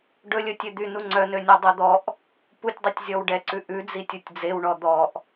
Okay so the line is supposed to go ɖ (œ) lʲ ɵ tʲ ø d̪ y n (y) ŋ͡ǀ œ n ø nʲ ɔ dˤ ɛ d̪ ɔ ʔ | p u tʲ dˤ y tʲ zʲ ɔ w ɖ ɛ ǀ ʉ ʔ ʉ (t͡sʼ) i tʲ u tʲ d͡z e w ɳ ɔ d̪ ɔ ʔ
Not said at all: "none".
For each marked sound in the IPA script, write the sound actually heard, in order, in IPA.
ɵ, u, d͡z

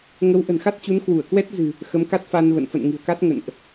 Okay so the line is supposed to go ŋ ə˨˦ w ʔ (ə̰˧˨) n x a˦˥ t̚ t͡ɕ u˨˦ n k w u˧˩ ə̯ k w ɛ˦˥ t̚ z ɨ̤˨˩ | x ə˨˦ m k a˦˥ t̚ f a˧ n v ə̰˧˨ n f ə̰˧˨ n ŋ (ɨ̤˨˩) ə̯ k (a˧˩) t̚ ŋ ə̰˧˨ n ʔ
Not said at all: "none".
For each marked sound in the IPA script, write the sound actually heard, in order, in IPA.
ə̤˨˩, ɨ̤˨˩, a˦˥

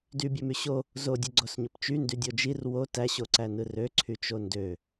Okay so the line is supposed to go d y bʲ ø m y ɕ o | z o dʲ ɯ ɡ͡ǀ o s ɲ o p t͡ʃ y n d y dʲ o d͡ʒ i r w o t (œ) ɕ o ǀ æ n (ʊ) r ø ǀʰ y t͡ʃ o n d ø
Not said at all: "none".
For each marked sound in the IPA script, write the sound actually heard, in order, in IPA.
æ, ɯ

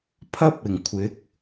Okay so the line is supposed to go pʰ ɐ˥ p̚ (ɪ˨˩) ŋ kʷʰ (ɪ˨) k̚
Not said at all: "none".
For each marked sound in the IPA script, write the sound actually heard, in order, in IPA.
ɪ˨˩, ɪ˨˥

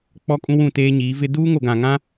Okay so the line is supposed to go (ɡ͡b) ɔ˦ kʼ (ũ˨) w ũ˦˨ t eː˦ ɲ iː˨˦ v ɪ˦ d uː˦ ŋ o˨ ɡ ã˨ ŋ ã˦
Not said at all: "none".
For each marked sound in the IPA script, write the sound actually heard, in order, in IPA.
k͡p, ũ˦

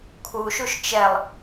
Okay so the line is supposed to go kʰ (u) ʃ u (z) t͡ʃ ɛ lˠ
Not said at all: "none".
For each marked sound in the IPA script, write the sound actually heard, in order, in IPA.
u, ʃ

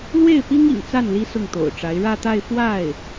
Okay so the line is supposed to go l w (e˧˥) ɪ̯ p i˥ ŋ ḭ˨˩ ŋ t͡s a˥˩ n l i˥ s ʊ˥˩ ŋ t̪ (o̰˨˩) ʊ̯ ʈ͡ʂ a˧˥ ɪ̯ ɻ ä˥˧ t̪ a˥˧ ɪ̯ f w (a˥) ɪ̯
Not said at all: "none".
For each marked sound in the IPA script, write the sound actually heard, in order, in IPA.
e˥˩, o̰˨˩, a˥˩

